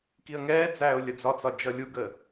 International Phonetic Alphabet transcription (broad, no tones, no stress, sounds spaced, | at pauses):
k i ə̯ ŋ ɛː d͡z æː ʊ̯ lʲ ə d͡z ɒ t͡s ɒ d͡ʒ ʌ lʲ u ɡ əː